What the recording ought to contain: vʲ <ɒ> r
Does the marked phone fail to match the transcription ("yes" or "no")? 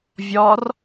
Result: no